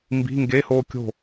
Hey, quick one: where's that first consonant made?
lips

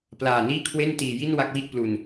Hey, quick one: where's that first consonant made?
lips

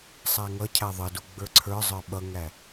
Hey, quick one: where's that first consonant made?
tongue tip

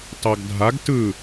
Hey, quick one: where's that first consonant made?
tongue tip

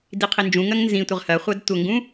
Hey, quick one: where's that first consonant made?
tongue tip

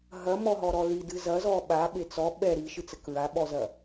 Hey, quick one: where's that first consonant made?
throat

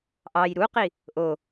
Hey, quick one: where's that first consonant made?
throat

